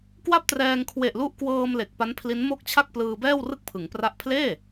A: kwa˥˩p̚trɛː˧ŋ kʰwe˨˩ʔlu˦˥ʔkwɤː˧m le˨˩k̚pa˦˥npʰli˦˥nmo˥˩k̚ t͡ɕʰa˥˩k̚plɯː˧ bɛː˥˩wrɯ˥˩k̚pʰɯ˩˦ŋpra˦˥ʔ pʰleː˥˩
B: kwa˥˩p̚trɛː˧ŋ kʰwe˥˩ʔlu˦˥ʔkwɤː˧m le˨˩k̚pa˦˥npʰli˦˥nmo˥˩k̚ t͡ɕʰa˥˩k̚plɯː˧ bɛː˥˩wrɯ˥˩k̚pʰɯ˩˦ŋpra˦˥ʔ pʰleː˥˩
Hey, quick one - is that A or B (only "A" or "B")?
A